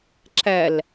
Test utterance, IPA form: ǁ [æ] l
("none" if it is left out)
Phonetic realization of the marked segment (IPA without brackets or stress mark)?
æ